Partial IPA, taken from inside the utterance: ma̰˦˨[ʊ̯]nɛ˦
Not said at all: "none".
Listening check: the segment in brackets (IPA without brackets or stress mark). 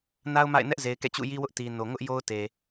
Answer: ɪ̯